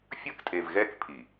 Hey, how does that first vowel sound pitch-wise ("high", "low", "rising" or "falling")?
high